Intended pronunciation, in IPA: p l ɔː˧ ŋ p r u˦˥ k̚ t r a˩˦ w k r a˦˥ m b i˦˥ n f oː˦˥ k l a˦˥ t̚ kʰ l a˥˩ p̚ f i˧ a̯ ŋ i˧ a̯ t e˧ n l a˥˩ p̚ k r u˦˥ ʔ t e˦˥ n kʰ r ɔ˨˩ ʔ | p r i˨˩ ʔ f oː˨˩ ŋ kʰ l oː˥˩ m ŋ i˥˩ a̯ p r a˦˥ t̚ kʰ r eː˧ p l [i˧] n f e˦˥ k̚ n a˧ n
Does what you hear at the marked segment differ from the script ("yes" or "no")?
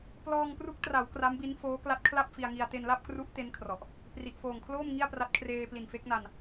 yes